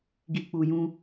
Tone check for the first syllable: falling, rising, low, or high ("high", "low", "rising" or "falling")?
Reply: low